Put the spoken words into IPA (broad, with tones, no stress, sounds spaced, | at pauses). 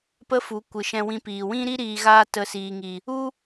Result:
p ə˦ f u˨˦ kʷ ɨ˨ ʃ ɛ̃˧ w ĩ˧ p iː˨ w ĩ˦ ɾ i˦ ɾ iː˧ ɣ aː˦ t ə˧ s iː˨ ŋ i˨ | u˦